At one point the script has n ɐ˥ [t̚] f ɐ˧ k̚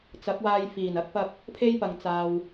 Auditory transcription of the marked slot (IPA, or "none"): k̚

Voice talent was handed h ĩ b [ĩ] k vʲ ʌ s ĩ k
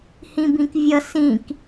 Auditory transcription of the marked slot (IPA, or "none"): ĩ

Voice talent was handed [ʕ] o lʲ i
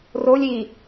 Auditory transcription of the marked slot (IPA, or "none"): r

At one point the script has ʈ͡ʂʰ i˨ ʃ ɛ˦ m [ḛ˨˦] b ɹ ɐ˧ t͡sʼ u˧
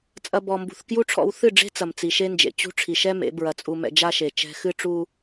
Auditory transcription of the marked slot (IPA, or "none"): ḛ˨˦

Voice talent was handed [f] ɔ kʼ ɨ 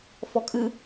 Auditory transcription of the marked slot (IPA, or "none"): f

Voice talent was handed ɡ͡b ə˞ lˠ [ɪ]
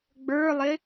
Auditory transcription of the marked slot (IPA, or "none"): ɪ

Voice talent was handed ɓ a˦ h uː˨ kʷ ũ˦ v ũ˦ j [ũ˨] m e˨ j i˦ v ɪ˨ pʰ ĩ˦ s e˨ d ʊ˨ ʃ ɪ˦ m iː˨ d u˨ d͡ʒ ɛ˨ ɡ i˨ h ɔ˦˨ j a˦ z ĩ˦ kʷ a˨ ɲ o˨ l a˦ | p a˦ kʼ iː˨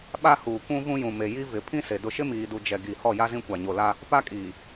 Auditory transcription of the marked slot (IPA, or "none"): ũ˨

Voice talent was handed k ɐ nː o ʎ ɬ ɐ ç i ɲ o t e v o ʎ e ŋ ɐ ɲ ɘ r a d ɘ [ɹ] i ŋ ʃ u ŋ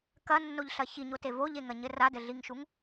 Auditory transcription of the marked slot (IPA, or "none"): ɮ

